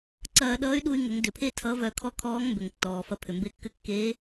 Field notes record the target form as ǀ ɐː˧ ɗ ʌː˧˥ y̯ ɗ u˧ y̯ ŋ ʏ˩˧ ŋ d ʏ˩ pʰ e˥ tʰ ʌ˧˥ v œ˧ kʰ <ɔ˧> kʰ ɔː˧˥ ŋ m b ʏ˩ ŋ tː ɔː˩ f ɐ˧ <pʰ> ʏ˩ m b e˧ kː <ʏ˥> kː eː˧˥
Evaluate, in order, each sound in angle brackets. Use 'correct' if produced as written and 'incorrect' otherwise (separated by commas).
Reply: correct, correct, incorrect